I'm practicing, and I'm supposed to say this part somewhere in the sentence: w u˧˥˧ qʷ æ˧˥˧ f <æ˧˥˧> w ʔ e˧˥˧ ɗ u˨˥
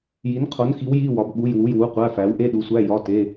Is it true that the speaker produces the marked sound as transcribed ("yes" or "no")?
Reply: no